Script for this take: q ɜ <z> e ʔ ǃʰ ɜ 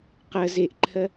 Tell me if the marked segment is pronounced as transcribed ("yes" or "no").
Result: yes